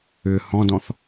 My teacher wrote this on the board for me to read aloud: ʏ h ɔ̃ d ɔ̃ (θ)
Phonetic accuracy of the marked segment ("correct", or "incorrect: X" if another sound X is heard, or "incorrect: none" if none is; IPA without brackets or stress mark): correct